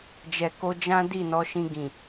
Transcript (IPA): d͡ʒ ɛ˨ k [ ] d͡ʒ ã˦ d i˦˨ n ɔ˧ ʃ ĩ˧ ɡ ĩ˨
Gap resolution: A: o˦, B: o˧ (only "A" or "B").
B